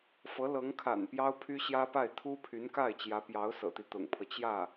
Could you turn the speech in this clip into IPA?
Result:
f ɤ˧˥ l ɤ˧˥ ŋ kʰ a̰˨˩ n p j ɑ˥ ʊ̯ pʰ y˥ ɕ j ä˥ p a˥˩ ɪ̯ t̪ʰ u˥ pʰ y˧˥ n k a˥˩ ɪ̯ t͡ɕ j ä˧˥ p j ɑ˧˥ ʊ̯ s ɤ̰˨˩ t̪ i˦ t̪ ʊ̰˨˩ ŋ pʰ ɤ˦ t͡ɕ j ä˥˩

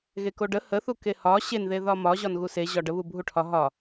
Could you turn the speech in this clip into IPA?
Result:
ɣ e k o ɖ ə h ə θ u k e h ɒ ɕ e n ð e ð ɒ m ɒ ʑ ɒ n ɣ u s e ʑ ɒ ɖ ə β u bʱ u ʈʰ ɒ ɦ ɒ

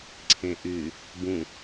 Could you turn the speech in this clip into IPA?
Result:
ǀʰ ẽ ʔ y | b ũ

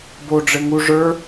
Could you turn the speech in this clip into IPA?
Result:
b o ɖ͡ʐ ɘ ŋ u ʐ ə˞

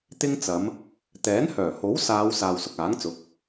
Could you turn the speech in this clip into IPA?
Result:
t̪ ɪ˧ ŋ t͡s ɐ˨˧ m | t̪ ɛː˨˥ n h œː˨˩ h o˨˥ w s aː˨˧ w s aː˨ w s ʊ˨ k̚ aː˨˥ ŋ t͡s ʊ˨˥ k̚

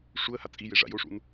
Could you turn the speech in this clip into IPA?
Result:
ʂ u ə̯ h a t͡sʼ i j e ʐ a̰ j o ʂ ṵ n

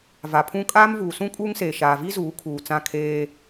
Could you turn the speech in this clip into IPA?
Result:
v a˨ pʰ ũ˦ kʼ aː˦ m v uː˨ s ũ˦ kʼ uː˦ ŋ s eː˨ ʃ aː˨ v i˦ z uː˨˦ kʰ uː˨ t͡s ã˦˨ kʰ eː˦

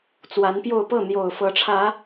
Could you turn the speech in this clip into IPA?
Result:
t͡s w a˨˦ n p j o˥˨ ʊ̯ p ɤ˥˨ n̪ j o˨˩ ʊ̯ f ɤ˨˦ ʈ͡ʂʰ ä˨˦

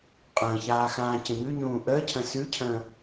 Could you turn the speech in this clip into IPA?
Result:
qʼ ə̃ː ç aː x ãː c ə̃ ɲ ʉ ɲ ũː ʔ əː cʰ ə̃ s ʉ cʰ ə̃ː

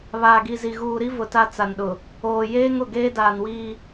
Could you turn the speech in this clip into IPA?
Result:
β aː˨ ɡ i˨ z i˨ ɣ uː˨ ɾ i˦ v ʊ˨ t a˦ t͡s a˨ n ɗ ʊ˨ | oː˨ j eː˦ ŋ ʊ˨ ɡ eː˦ d aː˨ n w iː˦

